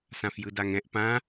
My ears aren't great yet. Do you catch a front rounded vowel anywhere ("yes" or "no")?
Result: no